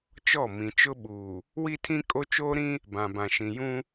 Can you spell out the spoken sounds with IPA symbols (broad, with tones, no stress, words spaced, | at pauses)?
t͡ʃɔ˦˨ mĩ˨t͡ʃʊ˦ɓuː˨ | wi˦tʰĩ˦ kʼo˦t͡ʃoː˦ɾĩ˦ | bã˨bã˨ʃĩ˨ jũ˦